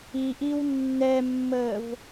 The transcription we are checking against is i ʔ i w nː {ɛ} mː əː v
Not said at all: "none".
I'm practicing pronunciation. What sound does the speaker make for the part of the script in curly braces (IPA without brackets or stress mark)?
ɛ